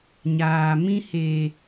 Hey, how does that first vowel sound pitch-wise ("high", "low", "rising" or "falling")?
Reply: low